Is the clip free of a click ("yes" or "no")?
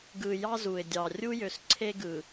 no